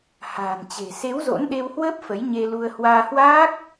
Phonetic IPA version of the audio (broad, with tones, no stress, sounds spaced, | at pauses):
h a̤ː˨˩ n t͡ɕ e̤˨˩ s e˨˦ w z o̰˧˥ n ɗ e˧ w h w əː˦˥ p̚ f ə˨˦ j ɲ e˧ l u˧ ə̯ h w aː˧ h w aː˦˥ k̚